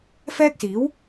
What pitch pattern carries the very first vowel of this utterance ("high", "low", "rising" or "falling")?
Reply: high